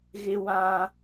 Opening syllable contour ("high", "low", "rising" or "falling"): high